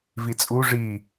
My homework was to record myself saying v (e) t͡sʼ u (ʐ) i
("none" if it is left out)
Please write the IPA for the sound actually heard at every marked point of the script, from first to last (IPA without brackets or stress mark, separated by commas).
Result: i, ʐ